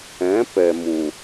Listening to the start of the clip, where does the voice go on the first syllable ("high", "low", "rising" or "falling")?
rising